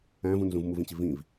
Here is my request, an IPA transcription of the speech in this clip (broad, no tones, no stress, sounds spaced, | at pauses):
æ̃ v ũ n z ũ v m u v ĩ t͡ɕ i v ĩ v